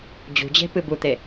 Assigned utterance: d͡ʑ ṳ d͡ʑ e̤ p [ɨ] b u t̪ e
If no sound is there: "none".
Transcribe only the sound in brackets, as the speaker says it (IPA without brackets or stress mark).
ɨ